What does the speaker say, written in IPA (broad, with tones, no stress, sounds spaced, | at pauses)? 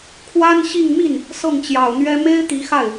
kʰ w a˥ n ɕ i˥˧ ŋ m i˥˩ n | s ɤ˥˩ ŋ t͡ɕ j ɑ˨˩ ʊ̯ n̪ ɥ ɛ˥ m e˥ ɪ̯ t̪ i˧˥ x a˥˩ ɪ̯